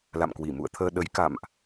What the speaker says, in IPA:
la̰˧˨mkwi˧˩mṵ˧˨ə̯t̪ʰəː˧ ɗə˨˦j ka̰˧˨mʔ

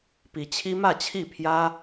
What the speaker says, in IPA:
pi˨˦t͡ɕʰi˦mä˥˨t͡ɕʰi˥˨ pʰjä˦

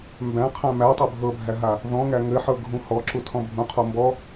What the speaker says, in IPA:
mbæ̃qʰæ̃ mætˤɤ bʱɤbʱæɦa | ðɔ̃ŋæ ŋɘħɤɡʱũ hɔǁutʰɔ̃ bʱũqʰɔ mbɔ

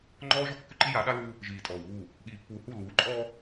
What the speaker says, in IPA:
ŋ͡ǃɔː˦ʒɔ˦ kːʉ˦ǃi˦ja˨˦ ɗa˦luː˦ | ʒiː˨tʼɔː˨wβuː˦˨ | ɠiː˨pːuː˨hu˦˨ luː˨˦ǃʼɔː˦

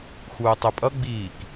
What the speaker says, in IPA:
xuːtˤøpʼʌ ɡ͡biːk

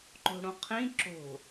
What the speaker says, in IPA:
ǃo̤ɽõqʰĩ ǁo̤

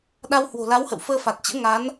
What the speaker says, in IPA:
ɗa˧whwo̤˨˩ la˨˦whə̰˧˨w fəː˧fa˨˩t̚t͡ɕə̰ː˧˥ ŋa˨˦n

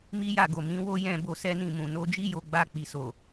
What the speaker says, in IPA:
mi˦ja˦˨ɡo˨ mĩ˨˦wo˦ jɛ̃˦˨bo˧ sɛ˦nĩ˦˨mũ˨ no˨˦d͡ʒi˦jo˧ɡ͡ba˧ k͡pi˨so˨

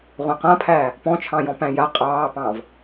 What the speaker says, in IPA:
ʁʷãqãpʰæː | pɔ̃t͡ʃʰɑ̃jɔ̃ pæ̃ja qʼɑːpɑ̃ːv

